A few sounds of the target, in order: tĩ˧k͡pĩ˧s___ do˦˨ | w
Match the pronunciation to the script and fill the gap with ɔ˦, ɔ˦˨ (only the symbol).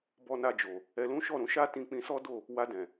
ɔ˦